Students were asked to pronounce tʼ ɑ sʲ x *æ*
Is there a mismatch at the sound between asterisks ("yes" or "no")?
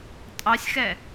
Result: yes